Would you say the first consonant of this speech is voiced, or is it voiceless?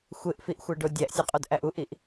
voiceless